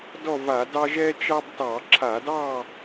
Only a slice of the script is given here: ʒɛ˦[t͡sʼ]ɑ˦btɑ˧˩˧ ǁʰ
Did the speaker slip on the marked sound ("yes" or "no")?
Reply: yes